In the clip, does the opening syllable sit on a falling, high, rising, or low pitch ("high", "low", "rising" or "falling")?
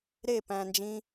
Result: falling